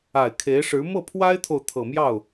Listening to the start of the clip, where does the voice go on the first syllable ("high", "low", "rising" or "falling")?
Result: low